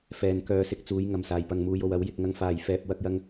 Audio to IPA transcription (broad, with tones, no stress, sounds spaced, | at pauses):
f ɛː˨ n k œː˨˧ s ɪ˨ k̚ t͡s uː˨˧ j ŋ ɐ˨ m s aː˨ j p ɐ˧ ŋ m uː˧ j o˧ w ɐ˨˥ w j ɪ˨˥ k̚ ŋ ɐ˥ ŋ f aː˧ j f ɛː˧ p̚ w ɐ˥ k̚ j ɐ˥ ŋ